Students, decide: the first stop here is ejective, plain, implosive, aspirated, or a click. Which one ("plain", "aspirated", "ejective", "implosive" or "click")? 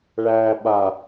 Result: implosive